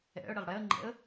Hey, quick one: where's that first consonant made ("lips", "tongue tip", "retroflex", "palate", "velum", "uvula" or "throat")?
retroflex